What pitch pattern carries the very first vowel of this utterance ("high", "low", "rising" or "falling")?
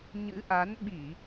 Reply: rising